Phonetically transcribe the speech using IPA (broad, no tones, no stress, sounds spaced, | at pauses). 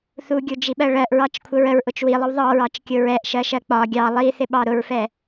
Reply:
θ u ɡʲ u d͡ʒ i ɓ ɜ ɭ ɜ ʔ ɹ ɑ t͡ʃ kʷʰ ə ɹ ə ɹ ʔ ʊ t͡ʃ w i lˠ ə w ðˤ ɑ ɹ ɑ t͡ʃ kʲ ʊ ɹ ɛ ʔ ʃ ɜ ʃ ɜ k͡p ɒ ɡʲ ɑ lˠ i θ ɪ ɓ ɑ ɾ ʊ ɹ f ɛ